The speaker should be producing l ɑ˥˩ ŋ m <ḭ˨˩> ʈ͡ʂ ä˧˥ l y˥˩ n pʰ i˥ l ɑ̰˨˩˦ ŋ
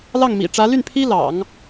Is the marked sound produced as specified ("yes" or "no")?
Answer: yes